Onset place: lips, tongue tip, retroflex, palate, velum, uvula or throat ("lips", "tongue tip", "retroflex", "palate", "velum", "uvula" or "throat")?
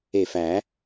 lips